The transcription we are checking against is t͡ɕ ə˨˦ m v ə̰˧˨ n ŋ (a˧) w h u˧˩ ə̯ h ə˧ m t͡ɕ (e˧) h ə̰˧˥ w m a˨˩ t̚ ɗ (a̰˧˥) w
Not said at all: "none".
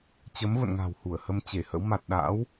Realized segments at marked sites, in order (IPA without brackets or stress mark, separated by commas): a̤˨˩, e˧˩, a̰˧˥